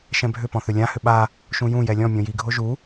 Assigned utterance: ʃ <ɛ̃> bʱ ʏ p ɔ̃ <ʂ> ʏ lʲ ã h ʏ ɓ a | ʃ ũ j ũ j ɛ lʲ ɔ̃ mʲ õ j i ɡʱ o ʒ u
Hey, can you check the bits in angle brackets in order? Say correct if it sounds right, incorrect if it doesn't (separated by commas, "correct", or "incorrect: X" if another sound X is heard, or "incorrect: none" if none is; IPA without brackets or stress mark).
correct, incorrect: θ